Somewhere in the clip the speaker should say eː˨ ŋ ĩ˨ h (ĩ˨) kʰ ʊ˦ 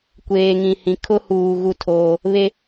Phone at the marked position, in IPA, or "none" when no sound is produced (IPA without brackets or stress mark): ĩ˨